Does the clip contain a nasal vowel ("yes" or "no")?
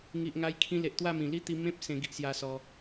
yes